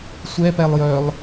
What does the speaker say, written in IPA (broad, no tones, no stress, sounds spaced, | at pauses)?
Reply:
sʷ ɛ p ɛ lˠ j œ lˠ